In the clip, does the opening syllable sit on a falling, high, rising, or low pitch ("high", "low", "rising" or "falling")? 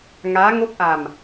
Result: rising